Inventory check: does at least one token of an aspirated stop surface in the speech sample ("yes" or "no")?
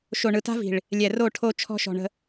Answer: yes